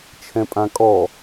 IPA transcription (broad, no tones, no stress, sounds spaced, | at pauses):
t͡ʃʰ ɛ̃ pʼ ã kʼ ɔ